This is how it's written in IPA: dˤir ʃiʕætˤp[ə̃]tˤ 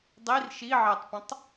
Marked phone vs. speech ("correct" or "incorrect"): correct